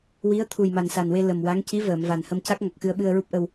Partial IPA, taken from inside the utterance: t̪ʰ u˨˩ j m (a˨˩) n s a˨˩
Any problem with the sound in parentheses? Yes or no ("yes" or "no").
no